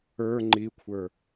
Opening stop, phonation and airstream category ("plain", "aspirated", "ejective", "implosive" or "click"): click